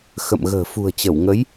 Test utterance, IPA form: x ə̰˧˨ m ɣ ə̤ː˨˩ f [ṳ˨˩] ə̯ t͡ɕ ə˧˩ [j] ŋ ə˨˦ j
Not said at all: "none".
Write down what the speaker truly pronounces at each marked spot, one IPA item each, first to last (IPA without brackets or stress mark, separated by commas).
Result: ṳ˨˩, w